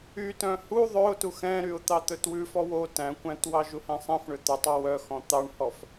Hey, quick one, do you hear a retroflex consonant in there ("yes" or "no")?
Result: yes